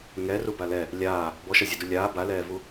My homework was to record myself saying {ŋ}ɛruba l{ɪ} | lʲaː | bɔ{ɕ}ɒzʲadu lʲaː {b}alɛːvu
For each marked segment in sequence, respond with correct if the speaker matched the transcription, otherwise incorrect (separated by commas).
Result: correct, incorrect, incorrect, correct